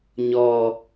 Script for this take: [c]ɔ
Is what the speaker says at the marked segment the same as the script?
no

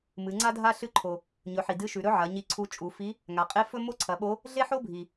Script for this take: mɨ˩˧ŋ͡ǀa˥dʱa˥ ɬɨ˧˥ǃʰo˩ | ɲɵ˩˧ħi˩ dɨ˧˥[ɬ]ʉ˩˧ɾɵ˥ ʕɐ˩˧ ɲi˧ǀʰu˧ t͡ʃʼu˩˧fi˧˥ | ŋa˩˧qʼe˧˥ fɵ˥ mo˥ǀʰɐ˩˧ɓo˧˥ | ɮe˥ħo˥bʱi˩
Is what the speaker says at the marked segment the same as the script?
no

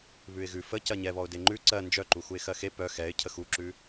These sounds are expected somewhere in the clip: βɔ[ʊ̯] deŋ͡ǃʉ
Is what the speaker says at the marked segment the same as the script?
yes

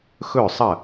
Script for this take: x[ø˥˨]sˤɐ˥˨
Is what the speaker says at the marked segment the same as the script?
no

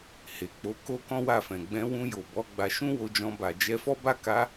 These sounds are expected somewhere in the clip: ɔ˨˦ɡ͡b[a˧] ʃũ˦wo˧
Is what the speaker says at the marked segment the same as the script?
yes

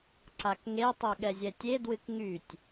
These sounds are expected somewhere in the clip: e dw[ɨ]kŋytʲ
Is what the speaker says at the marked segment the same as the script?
yes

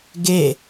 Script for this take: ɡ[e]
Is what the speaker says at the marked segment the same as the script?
yes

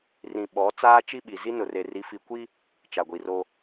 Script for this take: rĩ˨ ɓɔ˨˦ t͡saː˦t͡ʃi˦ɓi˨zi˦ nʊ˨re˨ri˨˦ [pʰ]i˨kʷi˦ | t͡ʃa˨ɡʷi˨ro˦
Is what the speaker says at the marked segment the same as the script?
no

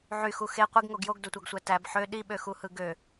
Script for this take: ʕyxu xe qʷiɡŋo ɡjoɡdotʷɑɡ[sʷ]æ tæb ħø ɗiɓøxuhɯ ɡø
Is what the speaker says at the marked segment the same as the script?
yes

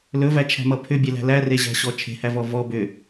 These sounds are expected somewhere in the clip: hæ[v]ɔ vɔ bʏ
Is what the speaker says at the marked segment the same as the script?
yes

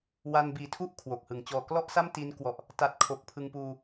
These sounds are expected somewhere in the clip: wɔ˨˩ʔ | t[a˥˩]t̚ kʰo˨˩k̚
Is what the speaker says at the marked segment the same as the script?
no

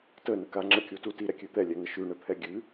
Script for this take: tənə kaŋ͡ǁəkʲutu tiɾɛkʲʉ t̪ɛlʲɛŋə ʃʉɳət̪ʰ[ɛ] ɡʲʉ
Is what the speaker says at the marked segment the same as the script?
yes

